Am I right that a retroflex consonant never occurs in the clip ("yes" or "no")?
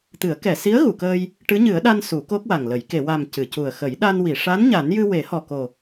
no